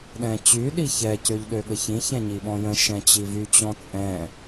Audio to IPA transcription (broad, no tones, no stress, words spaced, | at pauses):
ɗɛ̃t͡ɕy ɗiçɛ cøʎɗøɠəçĩ çɛ̃ɲiɓɔ̃jə̃ ʃɛ̃t͡ɕivy t͡ɕɔ̃t͡sʼɛ̃